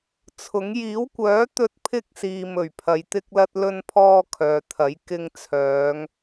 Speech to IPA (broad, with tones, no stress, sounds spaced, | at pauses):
t͡sʰ ʊ˨˥ ŋ j iː˨˥ w kʷ œː˨˥ t̪ ɵ˥ t̚ pʰ ɪ˥ k̚ s iː˨ m ɵ˨˩ ɥ pʰ ɐ˨˧ j t̪ ɪ˥ k̚ l ɐ˥ t̚ l ɵ˥ n pʰ ɔː˥ kʰ œː˨˧ t̪ʰ ɐ˨˥ j k ɪ˧ ŋ t͡sʰ œː˨˧ ŋ